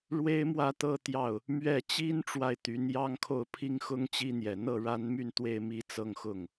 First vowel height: mid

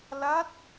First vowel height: low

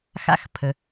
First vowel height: low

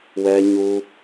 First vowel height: mid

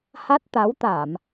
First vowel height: low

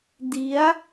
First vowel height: high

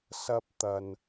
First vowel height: low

